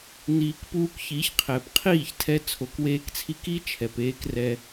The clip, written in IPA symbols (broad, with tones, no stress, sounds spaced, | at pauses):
n̪ iː˨ k p uː˧ k ç i˨˦ ç qʰ ɛː˨ p qʰ iː˦˨ ç tʰ ɛ˦ t͡sʰ o˧ k w eː˦ k t͡sʰ i˦ k i˦ t͡ʃʰ ɛ˨ p eː˦ k r ɛ˧